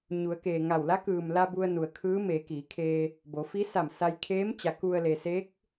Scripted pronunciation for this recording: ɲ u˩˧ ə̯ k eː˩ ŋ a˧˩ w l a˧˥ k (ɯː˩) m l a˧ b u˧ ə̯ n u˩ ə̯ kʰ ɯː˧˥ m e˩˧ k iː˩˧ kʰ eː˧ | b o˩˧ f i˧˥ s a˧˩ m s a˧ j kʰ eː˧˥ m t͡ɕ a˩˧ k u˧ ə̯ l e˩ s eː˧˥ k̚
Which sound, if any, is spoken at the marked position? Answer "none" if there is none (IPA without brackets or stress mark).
ɯː˩